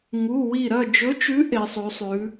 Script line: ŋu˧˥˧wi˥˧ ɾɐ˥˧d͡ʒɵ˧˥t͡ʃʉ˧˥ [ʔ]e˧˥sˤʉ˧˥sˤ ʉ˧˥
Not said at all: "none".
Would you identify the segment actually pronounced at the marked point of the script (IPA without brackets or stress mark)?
ʔ